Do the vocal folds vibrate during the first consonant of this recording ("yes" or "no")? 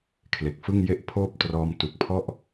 no